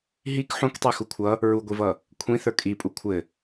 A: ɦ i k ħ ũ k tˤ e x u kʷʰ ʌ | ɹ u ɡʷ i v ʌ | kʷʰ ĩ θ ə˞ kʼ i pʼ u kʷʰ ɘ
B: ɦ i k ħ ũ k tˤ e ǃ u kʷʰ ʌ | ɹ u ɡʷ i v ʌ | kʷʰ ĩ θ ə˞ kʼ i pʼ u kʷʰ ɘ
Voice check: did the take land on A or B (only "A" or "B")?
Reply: A